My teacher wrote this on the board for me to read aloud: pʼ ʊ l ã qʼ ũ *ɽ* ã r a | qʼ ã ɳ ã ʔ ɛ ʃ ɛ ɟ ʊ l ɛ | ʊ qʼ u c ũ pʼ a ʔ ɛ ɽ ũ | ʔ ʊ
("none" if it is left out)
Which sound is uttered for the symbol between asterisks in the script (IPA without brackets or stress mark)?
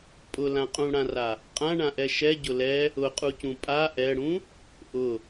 ɽ